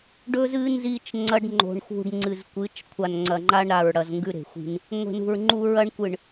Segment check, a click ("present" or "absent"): present